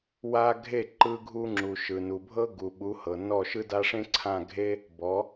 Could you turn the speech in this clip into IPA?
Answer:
w a˥ ɡʱ e˥˩ ǃ ɯ˧ ɡʱ u˧ ŋ͡ǁ u˩ ʃ ɯ˩ n u˩ bʱ ɤ˥ ɡ u˩ ɓ u˩˥ h ɤ˩ n ɔ˥˩ ʃ ɯ˥ d a˥ ʂ ẽ˥ ǀʰ ã˥˩ ɡʱ e˥ | b ɔ˩˥

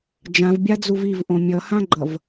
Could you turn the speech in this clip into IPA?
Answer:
d͡ʒ ã v bʲ a d͡z u v i v ʔ õ mʲ ʌ h ã ɡ͡ǃ ʌ v

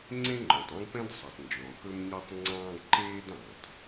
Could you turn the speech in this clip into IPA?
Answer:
ŋ͡ǀ ẽ˥ ŋ͡ǃ ɔ̃˩ tˤ ẽ˥ ɡ p ɛ̃˥ d sˤ ɵ˩ tˤ n d͡ʒ ɔ̃˩ k ɵ˥ m ɲ ɒ˥ tˤ ŋ͡ǀ ɑ̃ː˥ ɡ ǃ eː˥ d ɑ̃˩ tˤ

